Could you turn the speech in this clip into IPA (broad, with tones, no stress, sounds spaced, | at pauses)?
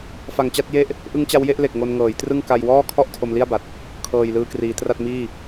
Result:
f a˨˩ ŋ t͡ɕ a˥˩ t̚ j e˥˩ ʔ | ʔ ɯ˦˥ ŋ t͡ɕ a˦˥ w j e˥˩ ʔ l e˨˩ k̚ ŋ o˧ n ŋ ɤː˩˦ j t r ɯ˥˩ ŋ k a˧ j w ɔː˥˩ kʰ ɔ˥˩ ʔ tʰ o˧ m l i˥˩ a̯ b a˨˩ t̚ | kʰ ɤː˨˩ j l ɯː˧ k r iː˩˦ t r a˥˩ t̚ m iː˥˩